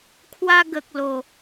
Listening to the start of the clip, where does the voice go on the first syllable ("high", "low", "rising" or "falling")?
high